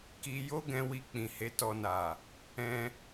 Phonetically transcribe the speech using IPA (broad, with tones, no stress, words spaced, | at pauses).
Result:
ki˧ jo˦ɡɛ̃˧wi˧ k͡pĩ˨he˨˦tɔ˧na˨ | ɛ̃˧